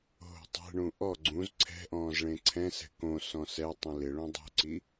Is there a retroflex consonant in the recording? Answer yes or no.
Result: yes